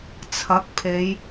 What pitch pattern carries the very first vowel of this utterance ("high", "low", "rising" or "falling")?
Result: rising